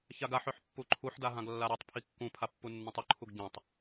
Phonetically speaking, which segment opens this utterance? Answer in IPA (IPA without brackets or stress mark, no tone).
ç